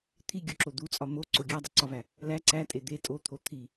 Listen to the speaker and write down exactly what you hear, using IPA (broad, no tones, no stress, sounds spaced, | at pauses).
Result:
t̪ʰ i ɡʲ o ǁ o d̪ u t͡sʼ ɒ m o ǀ o ɡʲ æ dˤ u ǀ ɒ v æ | l æ ǀ æ tʼ e d̪ e tʼ o t̪ʰ o t̪ʰ i